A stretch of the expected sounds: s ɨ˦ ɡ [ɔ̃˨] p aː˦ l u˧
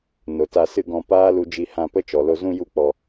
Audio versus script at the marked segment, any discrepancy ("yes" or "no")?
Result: yes